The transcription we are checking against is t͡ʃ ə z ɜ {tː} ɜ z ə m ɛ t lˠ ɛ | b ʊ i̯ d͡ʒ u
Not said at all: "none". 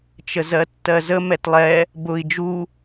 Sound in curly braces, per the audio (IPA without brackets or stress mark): tː